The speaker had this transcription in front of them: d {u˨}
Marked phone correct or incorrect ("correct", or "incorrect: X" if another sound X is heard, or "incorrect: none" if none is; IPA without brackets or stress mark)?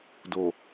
incorrect: o˨